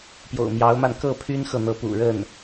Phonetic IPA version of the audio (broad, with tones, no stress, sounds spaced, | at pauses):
p j o̰˨˩ ʊ̯ m j ɑ˧˥ ʊ̯ m a˧ n k ɤ˥˩ pʰ y˥ n x ɤ˨ n̪ ɤ˧˥ p ṵ˨˩ ɻ ə˥˩ n